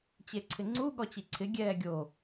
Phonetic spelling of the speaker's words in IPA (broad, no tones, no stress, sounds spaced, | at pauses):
t͡ɕ e ǀʰ ɪ ŋ͡ǀ u ɠ ɔ t͡ɕ i ǀʰ ɪ ɡʲ ɛː ɡʲ o